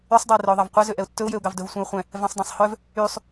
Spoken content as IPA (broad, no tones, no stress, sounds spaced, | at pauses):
y sˤ dˤ ɛ ɪ̯ r œ ʊ̯ ðˤ ɑ v qʷ ɛ z ø ʔ ɛ ʊ̯ tː ɵ ʊ̯ j ø ʊ̯ ɡ ɑ v d ɵ v sʷ ẽ ʊ̯ χʷ ɛ̃ | v ɛ̃ sˤ dˤ ɛ̃ sˤ h œ v | y sˤ